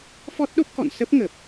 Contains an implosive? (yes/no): yes